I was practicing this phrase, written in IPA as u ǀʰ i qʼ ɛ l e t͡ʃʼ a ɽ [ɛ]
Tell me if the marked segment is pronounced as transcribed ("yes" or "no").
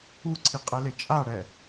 yes